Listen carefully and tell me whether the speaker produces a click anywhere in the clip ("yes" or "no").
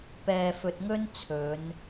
no